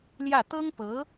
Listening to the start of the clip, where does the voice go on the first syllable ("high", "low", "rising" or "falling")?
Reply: falling